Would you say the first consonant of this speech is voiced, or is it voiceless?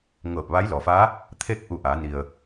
voiced